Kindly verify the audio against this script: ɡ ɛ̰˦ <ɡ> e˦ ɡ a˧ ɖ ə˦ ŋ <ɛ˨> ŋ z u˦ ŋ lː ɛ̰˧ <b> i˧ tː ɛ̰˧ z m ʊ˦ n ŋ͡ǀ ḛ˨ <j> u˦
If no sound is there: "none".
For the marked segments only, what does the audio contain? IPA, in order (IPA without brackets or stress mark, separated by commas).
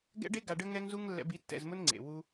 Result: ɖ, ɛ˦, b, w